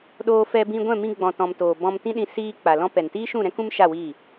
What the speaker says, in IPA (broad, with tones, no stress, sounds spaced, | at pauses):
ɗ oː˧ f ɛ˧ b ĩ˧ ɡʷ ɛ̃˦˨ m ĩ˧ ɡ͡b ɔ̃˨ t ɔ̃˨ m t oː˨ b ɔ̃˧ m t ĩ˦ ɗ ĩ˧ s iː˧ k͡p a˨ l ɔ̃˧ p ɛ˨ n t iː˦ ʃ ũ˦˨ ɾ ɛ̃˦ k ũ˦ m ʃ a˦˨ w iː˦˨